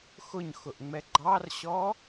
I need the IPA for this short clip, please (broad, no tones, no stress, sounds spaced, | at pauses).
x ʊ ɲ x ʊ ʔ ŋ͡m ɛ ɡ͡ǃ ɑ r ɕ ɔ